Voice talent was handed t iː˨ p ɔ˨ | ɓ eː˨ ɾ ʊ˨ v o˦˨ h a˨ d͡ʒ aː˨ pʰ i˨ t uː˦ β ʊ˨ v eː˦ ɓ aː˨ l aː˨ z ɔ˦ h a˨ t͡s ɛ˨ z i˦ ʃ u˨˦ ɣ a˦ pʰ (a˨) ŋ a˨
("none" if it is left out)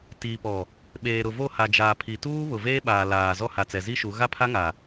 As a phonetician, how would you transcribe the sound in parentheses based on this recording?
a˦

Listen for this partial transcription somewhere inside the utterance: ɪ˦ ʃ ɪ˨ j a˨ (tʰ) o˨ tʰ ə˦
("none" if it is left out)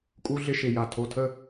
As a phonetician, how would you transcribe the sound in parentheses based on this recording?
tʰ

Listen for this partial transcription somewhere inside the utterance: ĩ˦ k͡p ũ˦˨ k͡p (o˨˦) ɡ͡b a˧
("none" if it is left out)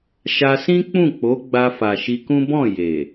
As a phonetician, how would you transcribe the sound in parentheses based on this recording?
o˨˦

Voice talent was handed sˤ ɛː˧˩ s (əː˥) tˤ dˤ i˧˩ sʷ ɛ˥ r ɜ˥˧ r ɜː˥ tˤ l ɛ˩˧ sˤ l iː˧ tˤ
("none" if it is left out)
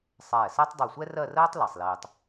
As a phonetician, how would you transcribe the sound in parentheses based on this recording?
əː˥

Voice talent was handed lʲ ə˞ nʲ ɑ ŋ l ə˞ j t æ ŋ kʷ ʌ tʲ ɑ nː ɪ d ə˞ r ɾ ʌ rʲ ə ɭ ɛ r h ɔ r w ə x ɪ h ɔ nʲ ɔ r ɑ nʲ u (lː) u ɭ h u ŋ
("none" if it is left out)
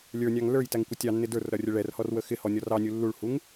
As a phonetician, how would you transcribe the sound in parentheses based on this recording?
lː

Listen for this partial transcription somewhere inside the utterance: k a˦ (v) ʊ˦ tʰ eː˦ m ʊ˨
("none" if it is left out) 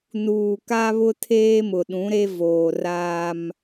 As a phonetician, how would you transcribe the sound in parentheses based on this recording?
β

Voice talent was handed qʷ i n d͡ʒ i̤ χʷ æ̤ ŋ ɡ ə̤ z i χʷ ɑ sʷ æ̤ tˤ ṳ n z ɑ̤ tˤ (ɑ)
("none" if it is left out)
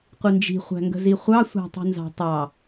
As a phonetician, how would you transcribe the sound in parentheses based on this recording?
ɑ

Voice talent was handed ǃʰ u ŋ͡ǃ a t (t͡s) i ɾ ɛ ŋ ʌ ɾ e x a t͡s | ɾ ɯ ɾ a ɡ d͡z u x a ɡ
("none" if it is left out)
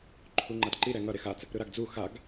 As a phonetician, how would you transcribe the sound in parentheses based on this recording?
ǃ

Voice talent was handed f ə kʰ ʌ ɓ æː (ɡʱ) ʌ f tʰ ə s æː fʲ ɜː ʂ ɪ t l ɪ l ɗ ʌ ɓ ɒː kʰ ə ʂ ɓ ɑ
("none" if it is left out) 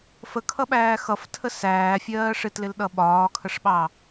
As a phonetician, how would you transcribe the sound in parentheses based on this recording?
x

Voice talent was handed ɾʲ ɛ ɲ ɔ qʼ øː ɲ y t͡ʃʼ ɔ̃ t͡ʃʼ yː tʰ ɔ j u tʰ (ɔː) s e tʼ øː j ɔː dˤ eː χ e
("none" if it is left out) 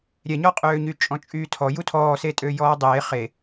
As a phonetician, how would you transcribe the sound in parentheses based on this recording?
ɔː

